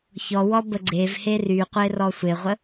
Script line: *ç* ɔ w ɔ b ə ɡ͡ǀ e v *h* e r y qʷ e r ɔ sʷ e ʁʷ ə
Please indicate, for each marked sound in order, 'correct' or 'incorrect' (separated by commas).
correct, correct